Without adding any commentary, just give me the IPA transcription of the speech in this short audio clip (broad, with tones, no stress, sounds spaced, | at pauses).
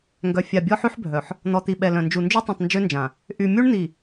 ŋ ɡ œ˨ fʲ a˨ bʲ ɔ˦ ħ y˦ ħ bʱ œ˨ ħ | n̪ ɔ˨ t̪ i˨ ɓ ɛ˨ l œ̃˨ n d͡ʒ u˨ n d͡ʒ y˦ tˤ œ̃˨ tˤ n d͡ʒ ø˦ n d͡ʒ ã˨ | ʔ y˨ mʲ u˦ ɳ n̪ i˨